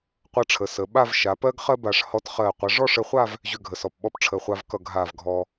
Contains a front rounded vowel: yes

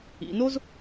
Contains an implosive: no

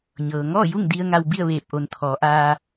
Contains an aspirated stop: yes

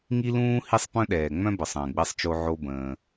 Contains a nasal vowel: yes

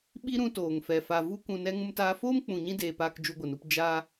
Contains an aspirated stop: no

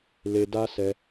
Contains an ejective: no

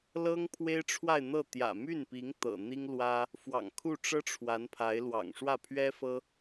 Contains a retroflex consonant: yes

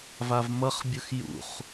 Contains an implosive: no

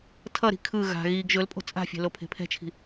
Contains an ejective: yes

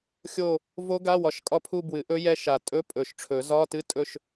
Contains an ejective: yes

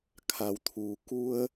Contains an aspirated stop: yes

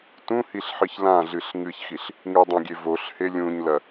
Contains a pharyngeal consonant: yes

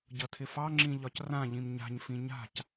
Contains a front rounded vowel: no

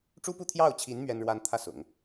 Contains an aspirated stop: yes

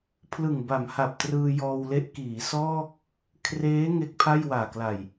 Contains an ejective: no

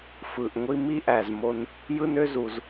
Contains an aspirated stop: no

